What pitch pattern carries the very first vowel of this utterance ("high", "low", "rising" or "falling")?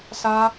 high